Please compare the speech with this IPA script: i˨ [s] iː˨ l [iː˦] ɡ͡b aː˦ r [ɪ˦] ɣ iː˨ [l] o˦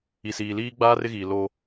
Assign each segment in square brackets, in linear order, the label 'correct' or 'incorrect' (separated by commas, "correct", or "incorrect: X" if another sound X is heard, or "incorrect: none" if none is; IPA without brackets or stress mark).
correct, correct, correct, correct